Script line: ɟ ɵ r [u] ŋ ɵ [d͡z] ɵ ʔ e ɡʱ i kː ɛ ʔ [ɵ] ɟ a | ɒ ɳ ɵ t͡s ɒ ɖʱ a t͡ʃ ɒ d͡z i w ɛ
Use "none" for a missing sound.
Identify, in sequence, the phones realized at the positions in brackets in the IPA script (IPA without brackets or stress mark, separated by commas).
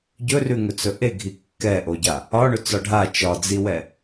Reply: ʉ, t͡s, o